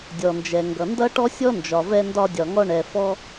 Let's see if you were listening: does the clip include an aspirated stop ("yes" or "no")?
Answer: no